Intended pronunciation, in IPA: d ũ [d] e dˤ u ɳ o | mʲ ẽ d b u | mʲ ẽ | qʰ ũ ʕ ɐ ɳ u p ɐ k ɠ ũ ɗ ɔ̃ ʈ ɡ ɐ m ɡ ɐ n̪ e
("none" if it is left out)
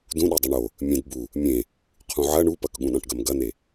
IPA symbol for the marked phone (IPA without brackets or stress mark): ɗ